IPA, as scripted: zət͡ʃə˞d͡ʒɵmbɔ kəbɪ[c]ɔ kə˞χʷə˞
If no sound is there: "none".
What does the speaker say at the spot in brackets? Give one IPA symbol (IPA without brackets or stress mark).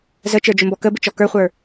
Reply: t͡ʃ